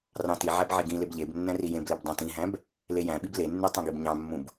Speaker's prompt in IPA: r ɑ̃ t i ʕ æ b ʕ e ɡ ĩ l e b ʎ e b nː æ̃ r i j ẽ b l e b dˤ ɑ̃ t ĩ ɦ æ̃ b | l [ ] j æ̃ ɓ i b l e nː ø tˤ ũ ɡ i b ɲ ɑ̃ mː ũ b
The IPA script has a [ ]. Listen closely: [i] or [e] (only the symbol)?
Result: e